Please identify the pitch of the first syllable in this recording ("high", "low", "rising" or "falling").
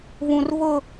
low